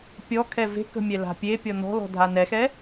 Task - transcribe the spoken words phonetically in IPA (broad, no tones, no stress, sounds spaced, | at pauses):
pʲ ɔ kʰ ɛ v e̤ k ə̤ mʲ ɛ l a̤ pʲ e pʲ ɔ n ɔ̤ l ɔ̤ dʱ a n ɛ x ɛ